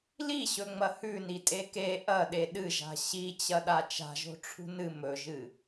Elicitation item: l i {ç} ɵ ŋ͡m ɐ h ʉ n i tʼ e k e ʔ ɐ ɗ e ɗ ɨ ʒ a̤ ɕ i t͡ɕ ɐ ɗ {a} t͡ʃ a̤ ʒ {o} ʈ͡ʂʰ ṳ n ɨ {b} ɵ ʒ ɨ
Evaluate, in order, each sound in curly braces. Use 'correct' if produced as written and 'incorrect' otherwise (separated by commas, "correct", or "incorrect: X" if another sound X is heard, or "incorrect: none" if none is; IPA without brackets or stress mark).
incorrect: ɕ, correct, incorrect: o̤, incorrect: m